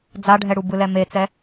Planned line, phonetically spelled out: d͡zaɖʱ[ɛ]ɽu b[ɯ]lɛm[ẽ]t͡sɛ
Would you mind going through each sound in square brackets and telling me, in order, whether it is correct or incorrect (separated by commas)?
correct, correct, incorrect